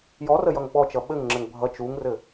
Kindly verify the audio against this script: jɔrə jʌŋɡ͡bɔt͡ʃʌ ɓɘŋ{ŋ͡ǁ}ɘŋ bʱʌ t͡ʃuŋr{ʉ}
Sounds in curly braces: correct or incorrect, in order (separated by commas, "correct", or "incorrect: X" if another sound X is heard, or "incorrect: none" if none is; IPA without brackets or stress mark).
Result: correct, incorrect: ɘ